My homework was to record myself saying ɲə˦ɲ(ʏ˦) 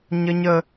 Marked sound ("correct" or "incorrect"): incorrect